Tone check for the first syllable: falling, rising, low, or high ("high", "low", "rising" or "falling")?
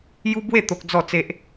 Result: high